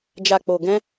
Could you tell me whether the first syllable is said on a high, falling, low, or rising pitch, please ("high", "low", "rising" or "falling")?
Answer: low